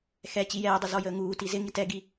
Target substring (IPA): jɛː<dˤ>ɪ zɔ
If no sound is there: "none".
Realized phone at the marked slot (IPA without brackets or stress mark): dˤ